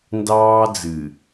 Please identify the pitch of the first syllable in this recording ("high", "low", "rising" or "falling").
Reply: high